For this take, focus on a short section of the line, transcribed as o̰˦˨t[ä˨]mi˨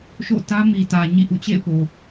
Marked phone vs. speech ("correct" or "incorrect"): incorrect